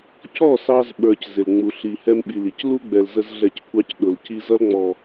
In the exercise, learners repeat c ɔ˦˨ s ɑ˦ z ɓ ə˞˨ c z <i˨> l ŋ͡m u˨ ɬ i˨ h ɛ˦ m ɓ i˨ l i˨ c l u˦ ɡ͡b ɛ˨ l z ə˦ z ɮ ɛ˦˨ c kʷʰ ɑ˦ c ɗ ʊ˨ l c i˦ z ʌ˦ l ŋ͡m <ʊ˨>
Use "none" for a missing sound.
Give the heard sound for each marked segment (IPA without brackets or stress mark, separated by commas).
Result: ɪ˨, ɔ˨